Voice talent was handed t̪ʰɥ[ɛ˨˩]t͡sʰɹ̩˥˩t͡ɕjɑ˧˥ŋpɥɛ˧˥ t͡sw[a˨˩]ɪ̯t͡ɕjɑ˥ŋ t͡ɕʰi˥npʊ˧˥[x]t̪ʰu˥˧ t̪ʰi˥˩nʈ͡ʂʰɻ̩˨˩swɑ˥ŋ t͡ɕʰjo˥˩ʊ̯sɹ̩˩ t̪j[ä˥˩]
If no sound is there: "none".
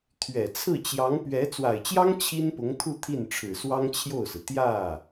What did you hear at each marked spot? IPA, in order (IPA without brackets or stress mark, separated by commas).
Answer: ɛ˨˩, a˨˩, ŋ, ä˥˩